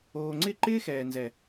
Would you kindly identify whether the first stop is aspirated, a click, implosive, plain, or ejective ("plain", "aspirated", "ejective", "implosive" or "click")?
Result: click